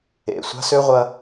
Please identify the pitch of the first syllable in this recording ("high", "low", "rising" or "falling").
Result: low